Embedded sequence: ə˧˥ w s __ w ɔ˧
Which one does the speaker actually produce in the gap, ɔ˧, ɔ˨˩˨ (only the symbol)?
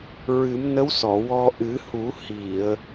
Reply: ɔ˨˩˨